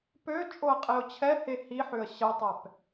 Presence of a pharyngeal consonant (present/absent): present